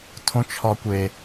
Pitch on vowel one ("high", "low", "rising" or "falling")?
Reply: high